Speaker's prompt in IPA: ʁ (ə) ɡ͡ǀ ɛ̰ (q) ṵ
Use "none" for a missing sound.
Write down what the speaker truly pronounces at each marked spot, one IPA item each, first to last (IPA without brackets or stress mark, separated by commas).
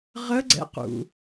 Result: ə, q